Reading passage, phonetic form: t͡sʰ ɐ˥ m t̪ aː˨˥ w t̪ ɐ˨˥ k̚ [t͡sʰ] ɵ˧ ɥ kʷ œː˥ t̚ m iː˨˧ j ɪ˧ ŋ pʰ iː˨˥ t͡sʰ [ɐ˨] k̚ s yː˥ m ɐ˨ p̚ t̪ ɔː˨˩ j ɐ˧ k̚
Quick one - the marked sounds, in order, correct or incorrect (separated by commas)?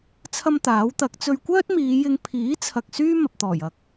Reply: incorrect, correct